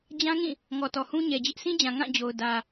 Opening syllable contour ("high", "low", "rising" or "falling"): high